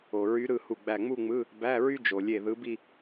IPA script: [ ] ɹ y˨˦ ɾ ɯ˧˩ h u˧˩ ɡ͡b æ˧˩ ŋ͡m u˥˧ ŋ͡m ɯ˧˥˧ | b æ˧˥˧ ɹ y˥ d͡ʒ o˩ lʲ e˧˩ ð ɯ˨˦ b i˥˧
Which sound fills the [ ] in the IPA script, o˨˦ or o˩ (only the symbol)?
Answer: o˩